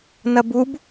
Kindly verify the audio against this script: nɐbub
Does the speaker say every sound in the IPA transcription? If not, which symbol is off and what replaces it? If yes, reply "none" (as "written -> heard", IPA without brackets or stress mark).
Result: none